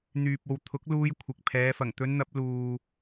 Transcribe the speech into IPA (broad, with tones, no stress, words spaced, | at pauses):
n̪yː˨p̚ o˨wt̪ʰʊ˨˥k̚ luː˧j kʷʰɪ˨k̚pʰɛː˨˧ fɐ˨˩ŋt̪ɵ˨˧nn̪ɐ˨˥p̚ luː˧